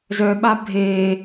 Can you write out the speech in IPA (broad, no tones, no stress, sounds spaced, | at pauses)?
z œ ɓ a bʱ e